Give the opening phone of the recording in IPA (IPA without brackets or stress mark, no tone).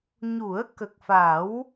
ɲ